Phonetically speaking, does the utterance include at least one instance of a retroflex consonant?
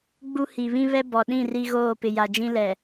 no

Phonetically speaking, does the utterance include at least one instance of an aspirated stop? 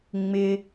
no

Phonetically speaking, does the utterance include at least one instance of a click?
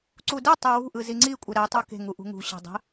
yes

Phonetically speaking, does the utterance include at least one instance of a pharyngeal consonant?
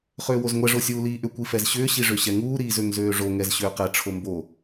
no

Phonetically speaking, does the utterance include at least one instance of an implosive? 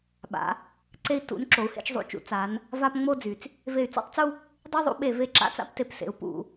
yes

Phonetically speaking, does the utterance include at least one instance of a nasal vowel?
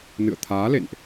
no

